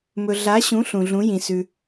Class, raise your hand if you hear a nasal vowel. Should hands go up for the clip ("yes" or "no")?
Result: yes